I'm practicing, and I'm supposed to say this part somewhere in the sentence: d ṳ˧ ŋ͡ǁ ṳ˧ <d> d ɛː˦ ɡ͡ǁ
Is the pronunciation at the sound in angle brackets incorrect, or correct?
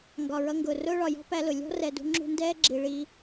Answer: incorrect